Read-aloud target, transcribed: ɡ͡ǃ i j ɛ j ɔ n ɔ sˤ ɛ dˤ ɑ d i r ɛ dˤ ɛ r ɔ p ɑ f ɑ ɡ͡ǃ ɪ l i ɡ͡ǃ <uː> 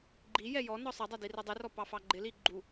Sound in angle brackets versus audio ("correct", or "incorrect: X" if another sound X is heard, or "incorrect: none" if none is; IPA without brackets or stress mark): incorrect: u